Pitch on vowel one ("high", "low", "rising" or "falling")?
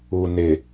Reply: low